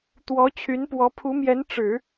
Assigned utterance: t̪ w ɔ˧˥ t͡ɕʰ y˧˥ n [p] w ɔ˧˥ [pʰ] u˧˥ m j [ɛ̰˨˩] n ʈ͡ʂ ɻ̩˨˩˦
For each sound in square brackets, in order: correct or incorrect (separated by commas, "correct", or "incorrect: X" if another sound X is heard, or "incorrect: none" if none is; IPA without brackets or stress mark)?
correct, correct, incorrect: ɛ˧˥